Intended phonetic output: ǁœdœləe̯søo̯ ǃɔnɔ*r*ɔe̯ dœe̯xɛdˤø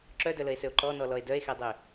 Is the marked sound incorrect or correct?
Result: incorrect: l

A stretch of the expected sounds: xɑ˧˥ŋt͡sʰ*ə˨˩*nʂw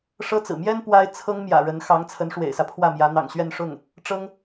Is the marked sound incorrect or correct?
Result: incorrect: ə˧˥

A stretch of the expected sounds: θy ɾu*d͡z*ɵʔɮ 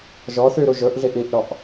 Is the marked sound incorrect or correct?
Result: incorrect: ʒ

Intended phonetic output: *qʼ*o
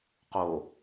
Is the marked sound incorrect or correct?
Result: incorrect: q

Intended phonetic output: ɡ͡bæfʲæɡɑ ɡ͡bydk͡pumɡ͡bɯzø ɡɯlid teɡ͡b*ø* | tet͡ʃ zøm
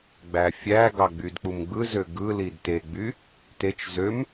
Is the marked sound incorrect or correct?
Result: incorrect: y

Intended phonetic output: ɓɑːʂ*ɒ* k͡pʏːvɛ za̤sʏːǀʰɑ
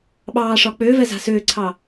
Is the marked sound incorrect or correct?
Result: correct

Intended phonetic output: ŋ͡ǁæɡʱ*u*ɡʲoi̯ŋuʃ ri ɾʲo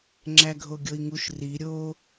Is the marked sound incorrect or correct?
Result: incorrect: o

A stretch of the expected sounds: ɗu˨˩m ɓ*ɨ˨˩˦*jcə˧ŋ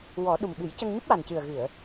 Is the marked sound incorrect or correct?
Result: correct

